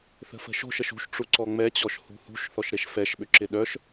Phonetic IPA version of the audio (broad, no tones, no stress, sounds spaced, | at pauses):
θ ə̤ f ə̤ ʃ o̤ ʃ ə ʃ ṳ ʃ ʈ͡ʂ u ǀ ɔ ŋ͡m ɛ t͡ɕ ɔ ʃ h ṳ h ṳ ʃ θ ɔ ʃ ɾ e ʃ f ɛ ʃ ɓ ʏ ǁ ɪ ɗ œ ʃ